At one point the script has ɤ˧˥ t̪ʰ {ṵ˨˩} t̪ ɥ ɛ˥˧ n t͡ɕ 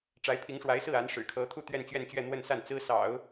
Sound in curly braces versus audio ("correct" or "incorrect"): incorrect